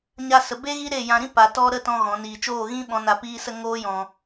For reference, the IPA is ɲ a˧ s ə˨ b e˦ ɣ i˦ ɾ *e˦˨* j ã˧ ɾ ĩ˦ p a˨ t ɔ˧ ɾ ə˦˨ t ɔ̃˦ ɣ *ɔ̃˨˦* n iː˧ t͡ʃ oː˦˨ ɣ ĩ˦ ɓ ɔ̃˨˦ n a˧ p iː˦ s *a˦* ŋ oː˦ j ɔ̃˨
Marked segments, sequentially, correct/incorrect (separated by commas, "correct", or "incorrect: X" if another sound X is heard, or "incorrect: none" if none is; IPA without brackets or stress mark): correct, correct, incorrect: ə˦